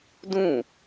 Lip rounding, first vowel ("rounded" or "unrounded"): rounded